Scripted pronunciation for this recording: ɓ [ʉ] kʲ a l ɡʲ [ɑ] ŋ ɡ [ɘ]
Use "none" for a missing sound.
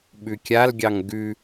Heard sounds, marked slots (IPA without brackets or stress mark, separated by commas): ʉ, ɑ, ʉ